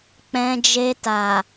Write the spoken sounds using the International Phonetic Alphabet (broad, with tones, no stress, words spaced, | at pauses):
k͡pɛ̃˧d͡ʒe˧ta˨